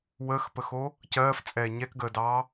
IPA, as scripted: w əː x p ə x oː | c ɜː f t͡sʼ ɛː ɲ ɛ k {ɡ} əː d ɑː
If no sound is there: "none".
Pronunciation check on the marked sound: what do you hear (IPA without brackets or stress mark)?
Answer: ɡ